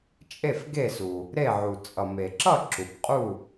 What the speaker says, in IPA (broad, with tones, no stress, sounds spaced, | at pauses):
t͡ʃʼ e˥˩ f ɡ e˥˩ s u˩ | ɾ e˥˩ ʕ u˩ t͡sʼ ʌ˩ m e˩ ǁ ʌ˥˩ ǁ u˩ b qʼ u˥˩